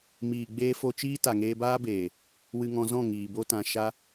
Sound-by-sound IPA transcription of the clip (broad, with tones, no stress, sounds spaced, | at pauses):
m iː˨ ɡ͡b eː˧ f o˧ t͡ʃ iː˦ t a˨ ŋ eː˧ b aː˦ b eː˨ | w ɨ˧ ŋ ɔ̃˧ z ɔ̃˦˨ ŋ iː˨ b o˦ t ã˧ ʃ a˧